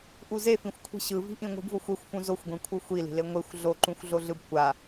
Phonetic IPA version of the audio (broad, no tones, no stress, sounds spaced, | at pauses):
ʔ u z e f ĩ xʷ kʷʰ i̤ ɕ ɯ v i̤ ʔ ĩ ŋʷ i̤ b v o xʷ e xʷ f ũ z o xʷ ɡʷ ĩ kʷʰ ɯ xʷ i l i̤ l e ŋʷ e xʷ ɮ o ǃ ũ xʷ ɮ o ɮ ɯ b kʷ a